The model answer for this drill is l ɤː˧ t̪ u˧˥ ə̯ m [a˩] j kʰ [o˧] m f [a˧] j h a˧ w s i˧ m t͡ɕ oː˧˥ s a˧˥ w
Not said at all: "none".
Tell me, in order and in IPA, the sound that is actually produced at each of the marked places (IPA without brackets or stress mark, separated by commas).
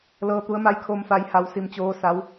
a˧˥, o˧, a˧